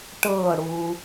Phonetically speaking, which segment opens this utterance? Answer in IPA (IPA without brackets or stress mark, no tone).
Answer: ʈ